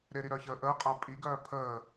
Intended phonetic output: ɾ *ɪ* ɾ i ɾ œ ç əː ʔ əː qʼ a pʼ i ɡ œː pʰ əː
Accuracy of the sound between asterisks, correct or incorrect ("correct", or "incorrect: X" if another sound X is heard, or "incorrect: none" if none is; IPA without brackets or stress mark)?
correct